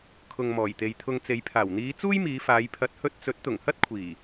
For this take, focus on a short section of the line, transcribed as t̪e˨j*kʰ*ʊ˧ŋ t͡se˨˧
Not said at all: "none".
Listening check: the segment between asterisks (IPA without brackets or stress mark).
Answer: t̪ʰ